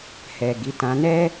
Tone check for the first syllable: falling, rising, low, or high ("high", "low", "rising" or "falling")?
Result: low